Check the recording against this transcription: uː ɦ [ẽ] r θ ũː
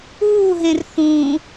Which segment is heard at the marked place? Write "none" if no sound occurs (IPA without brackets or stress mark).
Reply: ẽ